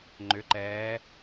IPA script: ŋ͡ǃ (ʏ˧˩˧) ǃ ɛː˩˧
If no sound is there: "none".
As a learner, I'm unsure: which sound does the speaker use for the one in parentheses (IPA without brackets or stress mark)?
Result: ʏ˩˧